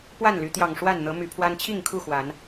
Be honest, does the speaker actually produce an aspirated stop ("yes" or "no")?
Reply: yes